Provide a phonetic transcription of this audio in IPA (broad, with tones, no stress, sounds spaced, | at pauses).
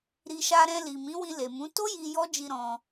ɾ i˧ ʃ a˦ ɾ ɛ̃˧ l i˨ m ĩ˨˦ w ĩ˧ l e˨ m ũ˨˦ t o˦ j i˧ j ɔ˦ d͡ʒ i˧ ɾ ɔ̃˧